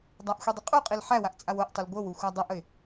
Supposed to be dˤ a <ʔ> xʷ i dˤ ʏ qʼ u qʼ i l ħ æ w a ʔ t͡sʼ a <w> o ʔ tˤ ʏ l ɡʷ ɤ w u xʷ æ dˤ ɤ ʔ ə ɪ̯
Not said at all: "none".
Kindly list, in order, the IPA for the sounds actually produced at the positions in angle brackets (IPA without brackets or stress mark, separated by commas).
ʔ, w